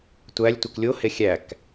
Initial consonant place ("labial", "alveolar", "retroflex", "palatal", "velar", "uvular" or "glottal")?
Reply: alveolar